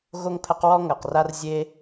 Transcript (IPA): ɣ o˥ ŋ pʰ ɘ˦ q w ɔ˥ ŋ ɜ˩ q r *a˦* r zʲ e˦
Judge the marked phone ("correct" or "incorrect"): correct